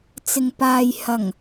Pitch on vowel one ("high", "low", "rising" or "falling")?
low